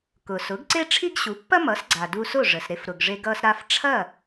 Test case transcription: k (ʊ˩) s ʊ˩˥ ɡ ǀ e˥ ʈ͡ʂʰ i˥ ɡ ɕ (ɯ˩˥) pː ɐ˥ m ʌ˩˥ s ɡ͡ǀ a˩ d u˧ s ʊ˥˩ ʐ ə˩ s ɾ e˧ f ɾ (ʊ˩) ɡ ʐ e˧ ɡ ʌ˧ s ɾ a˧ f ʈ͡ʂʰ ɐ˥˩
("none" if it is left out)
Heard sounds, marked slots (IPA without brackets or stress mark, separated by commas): ʊ˩, u˩˥, ʊ˩